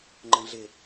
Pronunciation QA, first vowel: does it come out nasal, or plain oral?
nasal